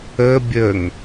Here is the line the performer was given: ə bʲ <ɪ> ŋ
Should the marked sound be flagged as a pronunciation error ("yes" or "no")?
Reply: yes